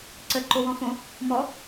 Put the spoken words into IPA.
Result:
ǀ ə ǃ o w ɔ̃ f õ | m ɔ

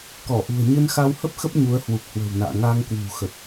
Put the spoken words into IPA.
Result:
k ɔ˧˩ ʔ ṳ˨˩ ə̯ ɲ ɨ˧ n x a˧ w h ə˦˥ p̚ x ə˦˥ p̚ ɲ u˨˦ ə̯ h w u˨˩ k̚ h w ə̤˨˩ w n a̰ː˧˨ ŋ a˧ ŋ k w ṳ˨˩ x ə˨˩ t̚

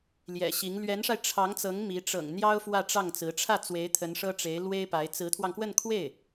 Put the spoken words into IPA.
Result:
l j ɛ̰˨˩ ɕ i˧˥ ŋ l ɥ ɛ˧˥ n ʂ a˧ ɪ̯ ʈ͡ʂʰ ɑ˧˥ ŋ t͡s ɤ˧˥ ŋ m i˧˥ ʈ͡ʂ ɤ̰˨˩ ŋ n̪ j ɑ˥ ʊ̯ f w ä˥˧ ʈ͡ʂ ɑ˥˩ ŋ t͡s ɹ̩˧˥ ʈ͡ʂʰ ä˥˩ t͡s w e˧˥ ɪ̯ t̪ʰ ə˧˥ n ʂ ɤ˥ ʈ͡ʂ e˧˥ ɪ̯ l w e˥ ɪ̯ p a˧˥ ɪ̯ t͡s ɹ̩˧˥ t̪ʰ w ɑ˧ ŋ k w ə˥˧ n kʰ w e˥˩ ɪ̯

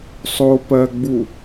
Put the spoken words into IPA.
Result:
sˤ o p ɜ ɡ͡b u

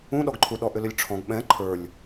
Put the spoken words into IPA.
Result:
ũ ɗ ɔ ɡ ǃʰ u ɗ ɔ ʔ ʏ l ʏ lʲ ʈ͡ʂʰ ɔ̃ ɡ ɓ ɛ̃ ǃʰ ə˞ lʲ

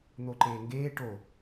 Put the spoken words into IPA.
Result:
n̪ o ǃ eː ŋ ɡ eː ʈ o

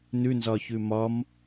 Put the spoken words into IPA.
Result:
n ʉ n z ɒ ç ʉ m ɒ m

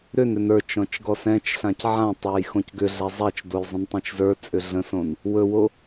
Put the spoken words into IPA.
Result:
ɾ ʏ n ɾ ʏ n ə˞ t͡ʃ ɔ̃ t͡ʃ ɡ ɔ s ɛ̃ t͡ʃ ɬ ã c ʕ ã tˤ ə˞ j x õ c ɡ ʏ ɮ a zˤ a t͡ʃ d o j zˤ ə̃ n tˤ ɛ̃ t͡ʃ z ə˞ t͡sʼ ʏ ɮ ə̃ s õ n | w ɵ w o

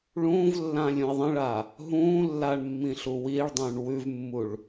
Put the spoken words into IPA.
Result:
ɭ ũː v lː ãː lʲ ũ ɪ̯ ðˤ ə̃ ɭ a | ɦ ũː lː a ɳ mː ĩ ɬ u w iː ɭ dˤ ũː ɳ w ʉ v mː u ɭ

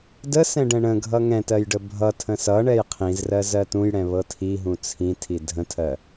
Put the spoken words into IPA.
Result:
d ə s ɛ̃ ɖ ɛ̃ ɳ ə̃ ɡʱ ʌ ŋ ɛ̃ t ɜ j ɖ ə bʱ ʌ tʰ ə̃ s ʌ ɳ ɛ j qʰ ĩ z r ɜ z ɜ t ũ j ɽ ɛ̃ β ɤ tʰ i ɦ ũ t͡sʰ ĩ tʰ i dʱ ə̃ tʰ ɜ

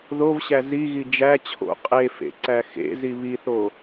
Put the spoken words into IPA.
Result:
ð o v ɕ æ z i ɣ i d͡ʒ æ t͡ɕʰ o̰ qʼ e f ḛ ǀ æ x ḛ z i β i θ o

